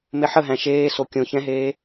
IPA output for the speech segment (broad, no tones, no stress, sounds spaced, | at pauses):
m e ħ ə ɦ æ̃ ʃ eː s o kʲ õ ç ɛ̃ ɦ eː